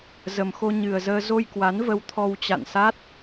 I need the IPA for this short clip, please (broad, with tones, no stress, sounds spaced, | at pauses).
z ə˨˩ m x o˧ ɲ ɨ˨˩ ə̯ z əː˧ z o˧ j k w a˨˦ n v ə˧ w t̪ʰ ɔ˧ w t͡ɕ a̰˧˨ n s a˦˥ t̚